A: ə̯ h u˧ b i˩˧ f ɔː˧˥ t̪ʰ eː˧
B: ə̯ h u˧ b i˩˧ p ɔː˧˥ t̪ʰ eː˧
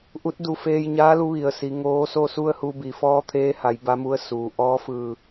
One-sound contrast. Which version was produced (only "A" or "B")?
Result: A